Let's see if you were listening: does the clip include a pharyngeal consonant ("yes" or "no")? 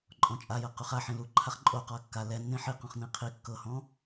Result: yes